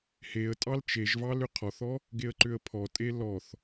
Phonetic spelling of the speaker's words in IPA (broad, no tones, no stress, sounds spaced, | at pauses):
h e ə̯ tʼ ɑ l t͡ʃ e ʒ v ɑ l ʏ qʰ ɔ θ ɔ | ɡ e ə̯ ǃ ʏ ə̯ pʰ ɔ tʼ e l ɔ θ